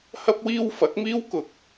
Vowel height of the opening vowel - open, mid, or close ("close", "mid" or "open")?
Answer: open